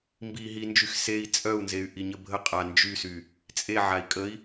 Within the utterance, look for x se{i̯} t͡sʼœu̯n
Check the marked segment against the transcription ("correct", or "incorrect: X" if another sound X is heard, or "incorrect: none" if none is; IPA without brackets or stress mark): correct